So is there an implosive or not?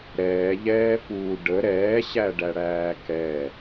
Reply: no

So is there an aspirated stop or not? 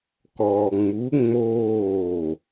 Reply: no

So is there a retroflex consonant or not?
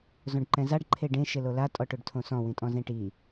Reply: yes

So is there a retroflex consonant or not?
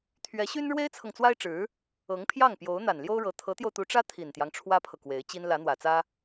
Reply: yes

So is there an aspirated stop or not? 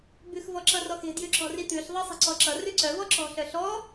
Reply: no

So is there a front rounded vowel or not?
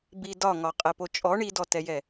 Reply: no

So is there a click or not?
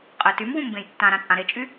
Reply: no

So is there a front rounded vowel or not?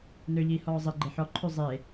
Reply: yes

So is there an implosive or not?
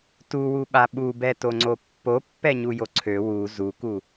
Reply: yes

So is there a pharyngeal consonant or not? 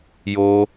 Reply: no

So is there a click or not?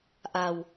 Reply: no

